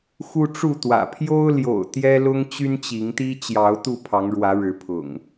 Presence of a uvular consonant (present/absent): absent